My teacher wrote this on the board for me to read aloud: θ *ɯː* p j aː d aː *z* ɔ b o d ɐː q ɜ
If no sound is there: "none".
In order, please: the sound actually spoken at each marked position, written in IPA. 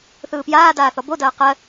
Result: ɯː, θ

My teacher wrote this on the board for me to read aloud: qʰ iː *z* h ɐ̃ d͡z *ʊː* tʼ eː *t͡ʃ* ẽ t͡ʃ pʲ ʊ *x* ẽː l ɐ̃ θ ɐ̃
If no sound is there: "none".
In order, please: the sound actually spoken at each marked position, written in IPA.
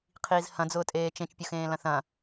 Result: z, ʊː, t͡ʃ, x

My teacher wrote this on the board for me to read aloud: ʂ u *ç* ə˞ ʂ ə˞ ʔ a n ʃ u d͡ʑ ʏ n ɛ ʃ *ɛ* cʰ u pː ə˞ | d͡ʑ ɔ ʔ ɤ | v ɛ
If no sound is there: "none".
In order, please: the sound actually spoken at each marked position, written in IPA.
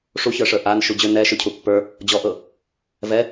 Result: ç, ʏ

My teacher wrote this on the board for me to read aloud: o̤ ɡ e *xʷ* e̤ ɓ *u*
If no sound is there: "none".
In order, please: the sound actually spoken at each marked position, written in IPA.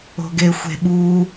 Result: xʷ, u

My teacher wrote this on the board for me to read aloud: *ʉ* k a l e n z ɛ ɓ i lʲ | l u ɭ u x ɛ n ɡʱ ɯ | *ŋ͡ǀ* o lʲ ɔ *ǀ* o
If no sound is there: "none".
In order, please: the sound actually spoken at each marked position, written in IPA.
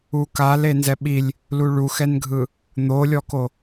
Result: u, n̪, k

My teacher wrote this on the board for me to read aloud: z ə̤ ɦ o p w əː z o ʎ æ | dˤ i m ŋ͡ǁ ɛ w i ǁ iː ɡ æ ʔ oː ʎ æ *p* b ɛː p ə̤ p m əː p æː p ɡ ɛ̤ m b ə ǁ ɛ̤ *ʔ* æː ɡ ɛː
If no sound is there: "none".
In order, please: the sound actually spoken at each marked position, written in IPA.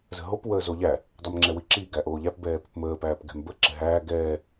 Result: p, ɦ

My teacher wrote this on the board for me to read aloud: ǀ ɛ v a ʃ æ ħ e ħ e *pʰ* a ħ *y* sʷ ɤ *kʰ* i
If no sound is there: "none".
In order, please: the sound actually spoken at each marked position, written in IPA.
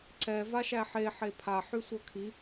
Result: pʰ, y, kʰ

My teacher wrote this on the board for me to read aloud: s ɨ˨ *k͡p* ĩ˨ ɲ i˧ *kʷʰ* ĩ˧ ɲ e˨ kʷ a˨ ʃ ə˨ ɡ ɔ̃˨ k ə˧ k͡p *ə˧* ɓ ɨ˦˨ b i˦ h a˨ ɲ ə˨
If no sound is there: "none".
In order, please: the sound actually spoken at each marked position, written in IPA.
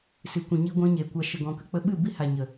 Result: kʷ, ɡʷ, ə˧

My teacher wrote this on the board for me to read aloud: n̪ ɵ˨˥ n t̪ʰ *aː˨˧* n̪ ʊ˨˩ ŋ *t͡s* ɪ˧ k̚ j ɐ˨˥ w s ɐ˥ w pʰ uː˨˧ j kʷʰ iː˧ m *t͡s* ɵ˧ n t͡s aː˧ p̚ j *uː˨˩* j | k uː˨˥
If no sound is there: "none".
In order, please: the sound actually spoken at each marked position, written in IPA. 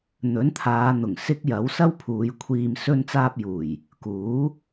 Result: aː˨˧, s, s, uː˨˩

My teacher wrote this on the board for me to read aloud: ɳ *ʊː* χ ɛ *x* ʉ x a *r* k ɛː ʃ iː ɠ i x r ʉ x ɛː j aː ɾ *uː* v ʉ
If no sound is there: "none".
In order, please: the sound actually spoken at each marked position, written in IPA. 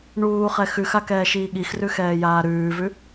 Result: uː, x, none, ʉː

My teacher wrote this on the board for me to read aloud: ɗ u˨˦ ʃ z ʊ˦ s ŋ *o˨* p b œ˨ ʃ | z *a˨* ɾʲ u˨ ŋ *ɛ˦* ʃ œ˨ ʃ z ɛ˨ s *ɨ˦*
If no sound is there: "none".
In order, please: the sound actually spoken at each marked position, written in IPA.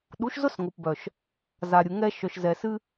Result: o˨, a˨, ɛ˦, ɨ˦

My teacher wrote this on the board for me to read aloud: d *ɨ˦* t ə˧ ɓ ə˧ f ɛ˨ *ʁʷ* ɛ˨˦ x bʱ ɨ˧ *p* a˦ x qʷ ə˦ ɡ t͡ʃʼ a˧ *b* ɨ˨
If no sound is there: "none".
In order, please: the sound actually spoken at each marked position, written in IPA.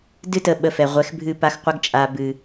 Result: ɨ˦, ʁʷ, p, b

